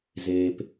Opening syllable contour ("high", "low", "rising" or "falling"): low